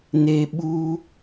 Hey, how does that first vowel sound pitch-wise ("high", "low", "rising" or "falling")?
high